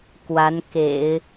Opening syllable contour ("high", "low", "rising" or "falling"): rising